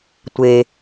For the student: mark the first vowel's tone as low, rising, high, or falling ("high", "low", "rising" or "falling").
low